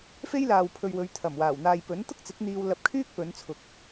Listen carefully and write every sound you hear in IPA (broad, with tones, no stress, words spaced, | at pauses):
fe˥jlaː˨wpʰɵ˨ɥwɵ˨˧ɥ t̪ʰɐ˨˩mwaː˨˩wn̪aː˨jpɵ˨˥n t̪ʊ˥k̚t͡sɪ˨˥k̚n̪iː˧w lɐ˧p̚kʰyː˥k̚ pɵ˨˧nt͡sʰʊ˨k̚